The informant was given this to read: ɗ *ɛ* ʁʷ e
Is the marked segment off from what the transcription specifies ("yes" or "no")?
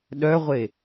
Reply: yes